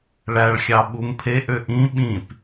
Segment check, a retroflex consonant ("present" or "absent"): present